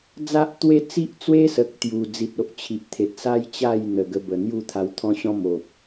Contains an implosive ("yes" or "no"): no